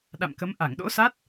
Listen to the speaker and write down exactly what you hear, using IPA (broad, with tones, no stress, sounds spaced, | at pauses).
ɗ a̰˧˨ m k ə˨˦ m ʔ a˧˩ ŋ ɗ o̰˧˥ s a˦˥ t̚